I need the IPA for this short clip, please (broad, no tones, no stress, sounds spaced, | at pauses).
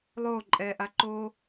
lˠ oː ǃʼ ɛː ʔ a ǃ oː